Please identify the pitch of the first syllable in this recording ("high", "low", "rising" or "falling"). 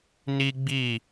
high